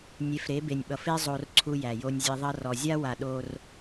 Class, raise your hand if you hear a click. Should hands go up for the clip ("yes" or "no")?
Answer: yes